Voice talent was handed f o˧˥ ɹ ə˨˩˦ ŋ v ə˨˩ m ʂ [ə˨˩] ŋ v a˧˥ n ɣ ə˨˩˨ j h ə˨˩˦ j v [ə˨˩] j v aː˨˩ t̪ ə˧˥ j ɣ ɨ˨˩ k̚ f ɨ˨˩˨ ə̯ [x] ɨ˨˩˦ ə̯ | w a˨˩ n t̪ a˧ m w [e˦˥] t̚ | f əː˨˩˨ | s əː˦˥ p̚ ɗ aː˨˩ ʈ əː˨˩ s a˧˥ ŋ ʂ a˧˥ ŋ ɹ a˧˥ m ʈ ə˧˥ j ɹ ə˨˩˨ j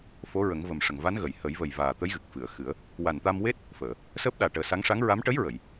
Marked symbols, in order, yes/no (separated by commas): yes, yes, yes, yes